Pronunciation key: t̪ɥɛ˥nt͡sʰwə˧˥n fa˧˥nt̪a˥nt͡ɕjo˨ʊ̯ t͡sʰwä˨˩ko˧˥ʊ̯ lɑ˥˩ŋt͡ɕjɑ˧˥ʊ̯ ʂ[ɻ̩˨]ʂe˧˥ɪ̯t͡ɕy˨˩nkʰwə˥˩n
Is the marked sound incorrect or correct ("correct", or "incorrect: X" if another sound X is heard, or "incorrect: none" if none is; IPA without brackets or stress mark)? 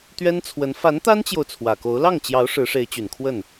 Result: incorrect: ɻ̩˧˥